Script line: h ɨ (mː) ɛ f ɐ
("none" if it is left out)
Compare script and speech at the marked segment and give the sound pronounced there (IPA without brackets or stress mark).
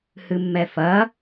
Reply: mː